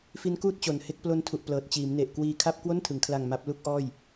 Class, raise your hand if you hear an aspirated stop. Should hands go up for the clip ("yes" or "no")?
yes